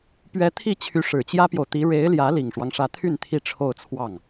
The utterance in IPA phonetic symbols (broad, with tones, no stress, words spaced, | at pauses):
pɥɛ˧˥t̪ʰi˥˩t͡ɕʰy˧˥ ʂɻ̩˨˩t͡ɕjä˥pjo˨ʊ̯t̪i˧˥ ɻe˧˥ɪ̯ljä˧˥ li˨˩ŋʂwɑ˦ŋʂä˧˥t̪ʰy˥˧n t̪ʰi˥˧ʈ͡ʂʰo˥˧ʊ̯t͡sʰwɑ˥˩ŋ